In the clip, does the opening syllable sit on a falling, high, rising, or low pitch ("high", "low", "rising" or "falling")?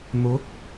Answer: rising